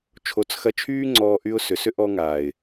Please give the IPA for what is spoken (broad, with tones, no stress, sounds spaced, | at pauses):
t͡ʃʰ o˨˦ t͡s x ɐ˧ t͡ʃʰ yː˦ ŋ͡ǀ ɔː˧ ʔ y˧ ʊ̯ s ʏ˨ s ʏ˦ ʔ ɔː˧ ŋ aː˨ ɪ̯